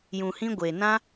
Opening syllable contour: low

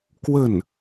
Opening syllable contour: falling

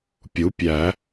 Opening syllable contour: rising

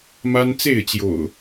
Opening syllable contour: high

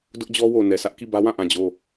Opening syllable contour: high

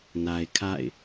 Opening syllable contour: low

